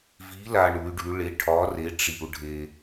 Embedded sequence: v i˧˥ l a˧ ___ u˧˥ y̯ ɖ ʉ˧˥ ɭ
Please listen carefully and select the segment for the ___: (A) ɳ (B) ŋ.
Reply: A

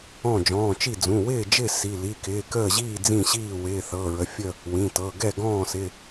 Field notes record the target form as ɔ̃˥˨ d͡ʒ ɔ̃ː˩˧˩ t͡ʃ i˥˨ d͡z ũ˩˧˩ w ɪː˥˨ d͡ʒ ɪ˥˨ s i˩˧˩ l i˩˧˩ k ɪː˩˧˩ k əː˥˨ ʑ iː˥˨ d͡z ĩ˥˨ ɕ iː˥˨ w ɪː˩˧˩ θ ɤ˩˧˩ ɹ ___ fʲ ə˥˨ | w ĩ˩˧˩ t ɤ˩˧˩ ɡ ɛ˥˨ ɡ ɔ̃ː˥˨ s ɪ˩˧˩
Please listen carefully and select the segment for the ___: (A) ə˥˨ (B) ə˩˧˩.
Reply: B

